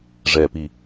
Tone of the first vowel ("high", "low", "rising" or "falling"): low